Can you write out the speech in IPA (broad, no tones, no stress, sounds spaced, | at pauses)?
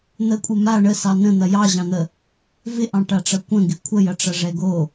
n̪ ə kʷʼ ɪ m a ɳ ə s ɑ n ə̃ n̪ ɐ j ɑ ʑ ɑ̃ n̪ ə | v ɪ ʔ ɑ̃ ʈ a ʈ͡ʂ ɐ kʷ ə̃ ɡ ɪ kʷʰ ə j ɐ ʈ͡ʂ ɐ ʐ ɛ ɡ o